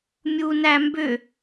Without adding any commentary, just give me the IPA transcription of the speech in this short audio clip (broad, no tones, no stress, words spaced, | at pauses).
mʲuːnæmbʏ